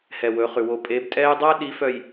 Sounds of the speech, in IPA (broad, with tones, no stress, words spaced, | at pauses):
hɛ˨wɵ˨˦χʉ˨ wo˨pʼe˨˦b tʼɛ˦j dˤæ˦ɗi˨˦fœ˨j